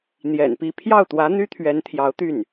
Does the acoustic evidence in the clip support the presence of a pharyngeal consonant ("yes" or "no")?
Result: no